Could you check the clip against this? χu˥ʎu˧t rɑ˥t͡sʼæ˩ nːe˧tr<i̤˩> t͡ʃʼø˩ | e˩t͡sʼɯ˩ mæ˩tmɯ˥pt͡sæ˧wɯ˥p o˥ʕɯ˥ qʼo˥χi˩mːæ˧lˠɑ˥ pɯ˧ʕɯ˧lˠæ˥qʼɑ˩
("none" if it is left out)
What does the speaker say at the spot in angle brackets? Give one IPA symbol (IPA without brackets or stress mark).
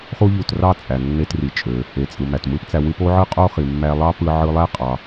i˩